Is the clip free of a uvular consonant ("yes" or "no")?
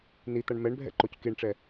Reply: yes